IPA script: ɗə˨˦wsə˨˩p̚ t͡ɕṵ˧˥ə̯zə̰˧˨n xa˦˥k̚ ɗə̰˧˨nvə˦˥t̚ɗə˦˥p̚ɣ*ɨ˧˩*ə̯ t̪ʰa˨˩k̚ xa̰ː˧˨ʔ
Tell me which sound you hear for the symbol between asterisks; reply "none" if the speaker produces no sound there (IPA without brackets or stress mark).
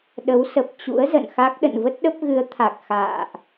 ɨ˨˦